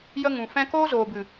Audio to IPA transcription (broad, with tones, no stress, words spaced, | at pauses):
jə˧ ŋũ˨fɛ̃˦ koː˦zoː˨bɨ˨